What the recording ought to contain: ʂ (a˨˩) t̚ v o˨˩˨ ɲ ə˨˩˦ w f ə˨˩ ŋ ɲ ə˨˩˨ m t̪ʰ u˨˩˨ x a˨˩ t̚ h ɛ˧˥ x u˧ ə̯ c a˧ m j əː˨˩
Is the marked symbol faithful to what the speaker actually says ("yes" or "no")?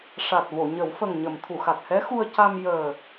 yes